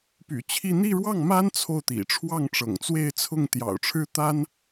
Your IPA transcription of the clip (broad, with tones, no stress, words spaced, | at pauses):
py̰˨˩ t͡ɕʰi˥˧ n̪i˥˧ɻwɑ˥˩ŋma˥n t͡sʰo˥˩ʊ̯t̪ḭ˨˩ ʈ͡ʂʰwɑ˥˩ŋʈ͡ʂɤ̰˨˩ŋt͡swe˥˧ɪ̯ t͡sʰʊ˥˩ŋ t̪jɑ̰˨˩ʊ̯ʈ͡ʂʰɻ̩˥ t̪a˥n